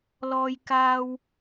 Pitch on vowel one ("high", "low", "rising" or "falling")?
high